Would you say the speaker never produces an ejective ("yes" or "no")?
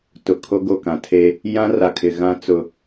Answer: yes